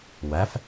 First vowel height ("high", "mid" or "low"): low